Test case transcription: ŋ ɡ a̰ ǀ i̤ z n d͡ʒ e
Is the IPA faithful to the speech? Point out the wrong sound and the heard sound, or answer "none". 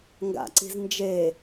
none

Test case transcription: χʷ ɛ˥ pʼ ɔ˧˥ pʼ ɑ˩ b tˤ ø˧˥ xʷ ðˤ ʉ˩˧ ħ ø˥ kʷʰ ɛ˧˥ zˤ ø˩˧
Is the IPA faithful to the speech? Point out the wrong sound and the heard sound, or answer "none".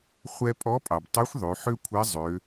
none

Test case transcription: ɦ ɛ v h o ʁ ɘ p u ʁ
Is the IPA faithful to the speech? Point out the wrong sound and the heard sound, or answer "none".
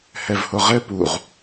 ɦ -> h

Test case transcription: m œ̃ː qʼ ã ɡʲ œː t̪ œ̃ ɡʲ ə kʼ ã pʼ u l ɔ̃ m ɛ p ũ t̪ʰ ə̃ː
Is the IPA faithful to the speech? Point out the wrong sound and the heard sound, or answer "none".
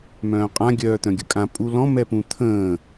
none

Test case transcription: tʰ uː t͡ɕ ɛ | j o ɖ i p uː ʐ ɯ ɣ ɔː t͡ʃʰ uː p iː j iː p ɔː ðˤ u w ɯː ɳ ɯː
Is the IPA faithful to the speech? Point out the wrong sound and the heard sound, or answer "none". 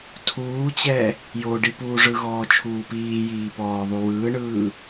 none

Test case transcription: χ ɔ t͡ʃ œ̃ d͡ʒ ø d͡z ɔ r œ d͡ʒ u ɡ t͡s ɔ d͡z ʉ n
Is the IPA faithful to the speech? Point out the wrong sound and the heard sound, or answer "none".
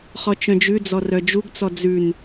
ø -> ʉ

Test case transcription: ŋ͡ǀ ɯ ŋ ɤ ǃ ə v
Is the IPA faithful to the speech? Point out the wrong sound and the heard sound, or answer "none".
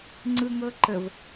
none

